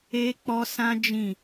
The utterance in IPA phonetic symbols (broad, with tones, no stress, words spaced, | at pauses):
e˦k͡pɔ˦sã˦ d͡ʒĩ˦˨